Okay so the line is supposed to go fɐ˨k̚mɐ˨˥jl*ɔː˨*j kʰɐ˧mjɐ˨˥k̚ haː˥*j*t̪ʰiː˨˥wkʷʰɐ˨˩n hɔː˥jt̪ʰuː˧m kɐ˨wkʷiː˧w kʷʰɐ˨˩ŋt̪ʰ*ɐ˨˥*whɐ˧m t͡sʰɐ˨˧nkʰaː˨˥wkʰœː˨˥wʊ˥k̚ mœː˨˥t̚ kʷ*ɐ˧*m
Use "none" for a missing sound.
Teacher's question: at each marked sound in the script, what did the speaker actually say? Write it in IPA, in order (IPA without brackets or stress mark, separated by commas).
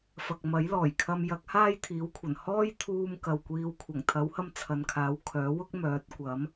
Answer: ɔː˨˩, j, ɐ˨˥, ɐ˨˥